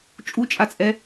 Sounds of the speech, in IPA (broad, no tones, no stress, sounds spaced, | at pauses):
t͡ʃʼ u t͡ʃʼ a t͡sʼ ɛ